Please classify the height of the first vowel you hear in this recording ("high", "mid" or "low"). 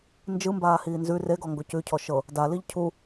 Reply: high